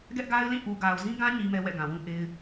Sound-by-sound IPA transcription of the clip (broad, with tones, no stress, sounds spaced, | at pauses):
ɡ ɛ˦ ʔ ɡ a˦ ɪ̯ l ĩ˦˨ ʔ u˨ ɡ a˨ ʊ̯ z ĩ˦ ɡ ã˦ ɲ i˦ m ɛ˦ w ɛ̰˦˨ ɡ ã˨ w ũ˦ ʔ e˦ ɪ̯